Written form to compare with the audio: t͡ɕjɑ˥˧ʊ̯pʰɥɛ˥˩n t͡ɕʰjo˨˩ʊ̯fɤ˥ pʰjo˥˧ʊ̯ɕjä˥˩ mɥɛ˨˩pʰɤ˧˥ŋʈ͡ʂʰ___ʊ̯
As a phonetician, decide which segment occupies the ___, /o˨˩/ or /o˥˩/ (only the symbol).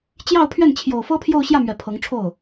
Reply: o˥˩